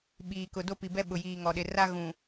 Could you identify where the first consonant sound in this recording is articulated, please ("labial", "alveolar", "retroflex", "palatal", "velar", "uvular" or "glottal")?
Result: labial